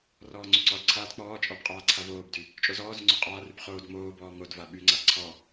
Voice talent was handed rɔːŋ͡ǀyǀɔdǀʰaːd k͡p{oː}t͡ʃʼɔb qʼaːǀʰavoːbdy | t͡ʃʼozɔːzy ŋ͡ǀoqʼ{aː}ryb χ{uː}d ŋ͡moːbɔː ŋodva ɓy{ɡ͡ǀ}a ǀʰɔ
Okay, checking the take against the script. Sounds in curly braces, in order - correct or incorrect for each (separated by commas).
incorrect, correct, incorrect, incorrect